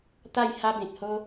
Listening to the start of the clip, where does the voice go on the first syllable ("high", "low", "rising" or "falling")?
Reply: falling